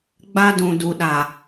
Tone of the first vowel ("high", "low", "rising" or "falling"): high